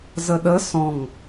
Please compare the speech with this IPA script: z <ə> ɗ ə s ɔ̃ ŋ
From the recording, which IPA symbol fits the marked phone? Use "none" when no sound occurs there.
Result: ə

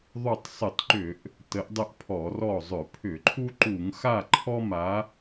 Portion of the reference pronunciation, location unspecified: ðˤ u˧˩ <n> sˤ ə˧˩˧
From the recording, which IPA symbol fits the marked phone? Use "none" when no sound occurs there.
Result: tˤ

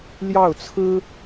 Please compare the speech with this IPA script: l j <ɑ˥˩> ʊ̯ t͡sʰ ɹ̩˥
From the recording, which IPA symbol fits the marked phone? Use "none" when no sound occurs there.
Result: ɑ˥˩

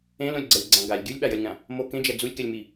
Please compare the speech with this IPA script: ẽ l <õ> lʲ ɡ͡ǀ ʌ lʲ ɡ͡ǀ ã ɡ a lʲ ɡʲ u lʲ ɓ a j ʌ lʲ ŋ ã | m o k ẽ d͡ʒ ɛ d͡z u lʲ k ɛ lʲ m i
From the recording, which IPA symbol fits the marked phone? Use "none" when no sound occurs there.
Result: õ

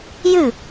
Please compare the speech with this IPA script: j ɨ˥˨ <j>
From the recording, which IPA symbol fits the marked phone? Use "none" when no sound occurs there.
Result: none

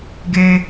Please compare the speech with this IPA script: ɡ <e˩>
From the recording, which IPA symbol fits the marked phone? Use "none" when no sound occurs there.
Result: e˩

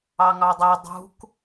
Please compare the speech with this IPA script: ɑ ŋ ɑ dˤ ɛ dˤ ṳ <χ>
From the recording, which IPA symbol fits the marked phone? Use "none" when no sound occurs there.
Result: k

